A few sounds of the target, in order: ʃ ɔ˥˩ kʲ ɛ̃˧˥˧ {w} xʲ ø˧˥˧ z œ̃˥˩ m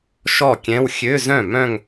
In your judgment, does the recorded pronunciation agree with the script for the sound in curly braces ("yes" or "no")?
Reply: yes